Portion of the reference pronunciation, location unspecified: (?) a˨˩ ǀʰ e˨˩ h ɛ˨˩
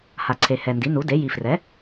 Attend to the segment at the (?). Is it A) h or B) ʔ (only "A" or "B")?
A